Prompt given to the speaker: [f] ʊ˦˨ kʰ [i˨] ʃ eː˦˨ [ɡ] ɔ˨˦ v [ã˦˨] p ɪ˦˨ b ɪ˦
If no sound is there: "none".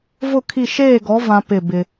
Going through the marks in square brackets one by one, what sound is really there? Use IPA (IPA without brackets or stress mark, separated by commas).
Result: v, i˦˨, ɡ, ã˦